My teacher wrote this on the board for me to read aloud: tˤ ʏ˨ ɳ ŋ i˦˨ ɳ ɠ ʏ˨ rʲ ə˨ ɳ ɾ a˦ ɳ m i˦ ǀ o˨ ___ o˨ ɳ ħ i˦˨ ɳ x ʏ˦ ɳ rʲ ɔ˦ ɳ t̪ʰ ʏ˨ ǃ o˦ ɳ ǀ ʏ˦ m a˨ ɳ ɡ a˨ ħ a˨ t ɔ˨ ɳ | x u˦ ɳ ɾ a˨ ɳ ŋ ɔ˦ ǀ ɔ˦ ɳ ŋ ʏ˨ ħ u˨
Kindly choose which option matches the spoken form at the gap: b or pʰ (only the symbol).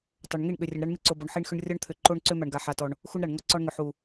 b